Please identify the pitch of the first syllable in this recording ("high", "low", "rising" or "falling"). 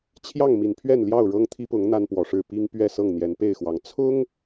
falling